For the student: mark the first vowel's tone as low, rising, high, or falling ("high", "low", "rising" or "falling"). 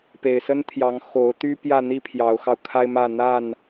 low